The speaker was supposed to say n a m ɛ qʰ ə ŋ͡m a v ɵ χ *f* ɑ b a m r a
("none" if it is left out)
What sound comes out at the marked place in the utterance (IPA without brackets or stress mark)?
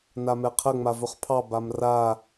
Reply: pʰ